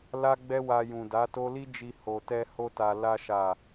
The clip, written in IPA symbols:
l a˦ ɡ͡b ɛ˦ w a˧ j ũ˨ d a˨˦ t o˦ l i˦ d͡ʒ i˧ h o˨ t ɛ˧ h o˧ t a˨ l a˧ ʃ a˨

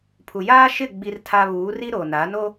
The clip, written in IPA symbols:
pʰ u˨ j aː˦ ʃ ɪ˦˨ ɡ͡b i˦ r tʰ a˦ β uː˨˦ r i˦ ɾ o˨ n a˨˦ n o˦

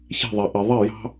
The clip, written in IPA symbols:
ç ɛ̤˧˩ ðˤ a˩ ʔ ɛ˩ ðˤ ɛ˥˩ j ɑ̤˦

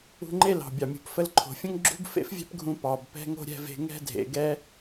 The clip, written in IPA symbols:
ṳ˧ ŋ͡ǃ e˥ l ɑ̤˩ bʲ ɑ˩ mʲ ṳ˩ p f ə˧ l ǃʰ o̤˩ fʲ ə̃˥ ŋ ɡ͡ǁ ṳ˥ b f ḛ˥ f vʲ ɛ̤˥ p ɡʱ ũ˧ p ɑ˩ b p ɛ̤˧ ŋ o̤˥ ɾʲ ɛ̤˧ v e̤˧ ŋ ɛ̤˥ dʱ ḛ˩ ɡ ɛ˥

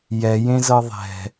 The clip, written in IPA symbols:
j ɛ j ẽ z ɤ ðˤ ɛ̤

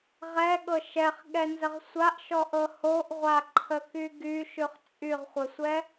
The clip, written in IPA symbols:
ʁ ɛ ɠ ɤ ʃ ɛ χ ɠ ɛ n z ə ʁ sʷ a ʔ ʃ ɔ ʔ ɤ h o ʔ ʁʷ a ǃʰ ə k y ɡ y ʃ ʉ χ t͡sʼ y ʁ χʷ ə sʷ ɛ

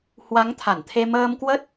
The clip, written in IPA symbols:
h w a˨˦ ŋ t̪ʰ a˧˩ n t̪ʰ e˧ m əː˧ m k w ə˦˥ t̚

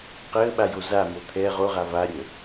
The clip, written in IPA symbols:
q əː ɓ a j o z a m o t̪ʰ ɛ ʁ o ʁ a v a ɾʲ əː

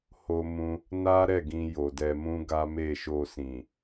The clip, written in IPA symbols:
h o˧ m ũ˧ | n a˦ ɾ ɛ˦˨ ɡ ĩ˧ j o˨ d ɛ˧ m ũ˦ ɡ a˦ m e˦˨ ʃ o˧ s ĩ˨

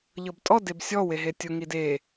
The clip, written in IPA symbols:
ʎ ɤ b tʼ ɔ d e b sʲ ɔ w e ɦ e tʲ ʊ ŋ i d e

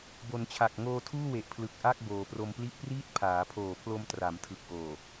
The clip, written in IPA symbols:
b o˩˦ n t͡ɕʰ a˨˩ k̚ ŋ oː˧ tʰ uː˥˩ w e˨˩ ʔ pʰ l ɯ˨˩ k̚ ʔ a˥˩ k̚ b oː˩˦ p r o˧ m p l i˥˩ ʔ p r iː˥˩ t̚ pʰ aː˩˦ pʰ oː˨˩ pʰ l o˧ m t r a˩˦ m tʰ ɯ˨˩ k̚ ʔ oː˨˩

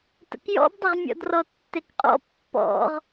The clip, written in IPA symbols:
t ə̰ k j ɔ̰ b dˤ ə ʁ mʲ ɔ̰ d r ɔ tː e k qʼ ɔ̰ pː ɔ̰ ʁ

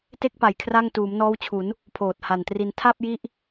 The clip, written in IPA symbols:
t e˥˩ k̚ p a˩˦ j kʰ r a˥˩ ŋ t uː˩˦ m n ɔː˦˥ w t͡ɕʰ u˩˦ n | pʰ oː˨˩ t̚ h a˨˩ n t r i˧ n tʰ a˥˩ p̚ j i˦˥ ʔ

